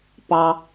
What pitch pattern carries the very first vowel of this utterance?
low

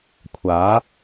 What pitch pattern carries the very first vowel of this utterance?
rising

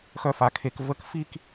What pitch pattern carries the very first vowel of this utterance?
high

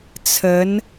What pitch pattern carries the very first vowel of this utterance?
rising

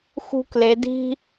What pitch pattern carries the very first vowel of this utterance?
high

